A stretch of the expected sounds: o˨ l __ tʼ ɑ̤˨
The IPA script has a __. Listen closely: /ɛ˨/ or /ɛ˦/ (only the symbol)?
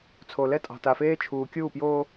ɛ˦